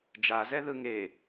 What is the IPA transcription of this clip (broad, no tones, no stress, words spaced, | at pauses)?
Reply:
d͡ʒazɛ ðɯŋe